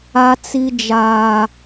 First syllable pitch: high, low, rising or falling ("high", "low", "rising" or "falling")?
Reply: high